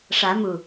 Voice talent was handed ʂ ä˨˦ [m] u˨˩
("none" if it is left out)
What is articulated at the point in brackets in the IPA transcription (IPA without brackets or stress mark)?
m